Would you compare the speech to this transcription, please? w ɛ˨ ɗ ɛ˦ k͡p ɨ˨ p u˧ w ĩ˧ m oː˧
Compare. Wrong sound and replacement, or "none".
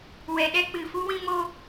p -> f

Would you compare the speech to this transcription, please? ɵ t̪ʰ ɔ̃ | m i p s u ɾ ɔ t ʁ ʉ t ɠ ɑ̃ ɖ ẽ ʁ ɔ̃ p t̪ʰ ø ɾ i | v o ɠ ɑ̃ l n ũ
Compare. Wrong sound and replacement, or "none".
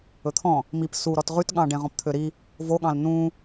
none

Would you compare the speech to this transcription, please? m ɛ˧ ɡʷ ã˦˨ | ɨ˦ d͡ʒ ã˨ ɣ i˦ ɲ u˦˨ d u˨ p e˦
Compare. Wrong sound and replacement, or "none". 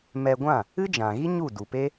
none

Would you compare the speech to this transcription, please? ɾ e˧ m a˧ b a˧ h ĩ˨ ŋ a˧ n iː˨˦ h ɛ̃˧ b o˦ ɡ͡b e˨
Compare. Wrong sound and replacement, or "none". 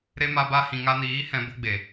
none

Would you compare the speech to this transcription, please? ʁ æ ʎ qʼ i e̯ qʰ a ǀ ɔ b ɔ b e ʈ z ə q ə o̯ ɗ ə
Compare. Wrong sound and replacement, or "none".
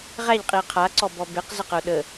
ʈ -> q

